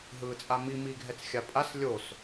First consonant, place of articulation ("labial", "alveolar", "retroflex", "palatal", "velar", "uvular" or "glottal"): glottal